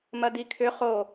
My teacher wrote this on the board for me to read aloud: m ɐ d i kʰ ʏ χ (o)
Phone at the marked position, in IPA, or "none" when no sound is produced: o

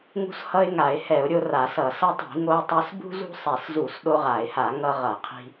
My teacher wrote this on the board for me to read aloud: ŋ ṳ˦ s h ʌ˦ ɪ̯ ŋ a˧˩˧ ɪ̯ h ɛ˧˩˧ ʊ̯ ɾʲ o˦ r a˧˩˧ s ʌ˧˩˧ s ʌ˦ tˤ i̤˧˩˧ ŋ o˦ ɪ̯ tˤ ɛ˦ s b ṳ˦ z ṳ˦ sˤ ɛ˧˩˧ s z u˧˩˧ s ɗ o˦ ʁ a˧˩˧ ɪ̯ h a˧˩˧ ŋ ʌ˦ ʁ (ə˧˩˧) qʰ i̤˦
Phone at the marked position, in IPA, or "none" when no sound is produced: ʌ˧˩˧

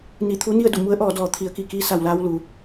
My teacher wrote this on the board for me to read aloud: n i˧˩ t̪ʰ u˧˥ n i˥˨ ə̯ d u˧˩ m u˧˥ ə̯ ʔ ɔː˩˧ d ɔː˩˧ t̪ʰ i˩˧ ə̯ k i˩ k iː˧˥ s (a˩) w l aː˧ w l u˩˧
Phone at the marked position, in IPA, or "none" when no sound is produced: a˩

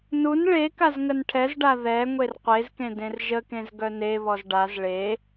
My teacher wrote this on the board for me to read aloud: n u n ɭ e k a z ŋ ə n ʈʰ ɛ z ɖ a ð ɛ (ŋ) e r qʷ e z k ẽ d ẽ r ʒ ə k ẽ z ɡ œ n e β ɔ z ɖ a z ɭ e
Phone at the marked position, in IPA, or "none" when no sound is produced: ŋʷ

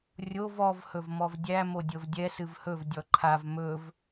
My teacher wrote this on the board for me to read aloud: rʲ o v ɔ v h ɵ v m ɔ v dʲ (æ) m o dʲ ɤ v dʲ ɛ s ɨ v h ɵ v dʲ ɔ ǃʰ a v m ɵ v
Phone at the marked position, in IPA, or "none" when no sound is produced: æ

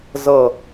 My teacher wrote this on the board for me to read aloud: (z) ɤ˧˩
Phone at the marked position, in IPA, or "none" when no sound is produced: z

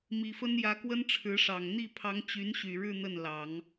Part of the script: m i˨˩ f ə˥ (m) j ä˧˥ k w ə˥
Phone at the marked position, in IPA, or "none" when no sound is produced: n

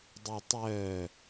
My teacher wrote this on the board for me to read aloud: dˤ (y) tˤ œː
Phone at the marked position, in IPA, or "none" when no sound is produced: y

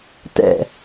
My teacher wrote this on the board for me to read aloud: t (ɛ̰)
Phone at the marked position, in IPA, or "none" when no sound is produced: ɛ̰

